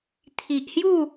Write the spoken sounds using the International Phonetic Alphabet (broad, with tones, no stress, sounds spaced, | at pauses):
t̪ʰ i˨ ʔ h j u˥˧